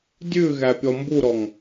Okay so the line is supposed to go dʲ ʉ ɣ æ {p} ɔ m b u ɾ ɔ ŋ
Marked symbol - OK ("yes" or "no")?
no